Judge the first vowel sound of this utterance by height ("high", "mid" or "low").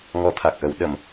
mid